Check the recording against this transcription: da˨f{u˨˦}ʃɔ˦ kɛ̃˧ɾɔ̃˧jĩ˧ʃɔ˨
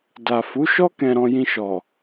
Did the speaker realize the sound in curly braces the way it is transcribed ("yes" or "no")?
yes